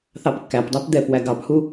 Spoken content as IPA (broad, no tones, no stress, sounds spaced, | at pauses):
θ ɑ p kː æ p dˤ æ p d̪ ɛ p w æ ɡ ɑ p h u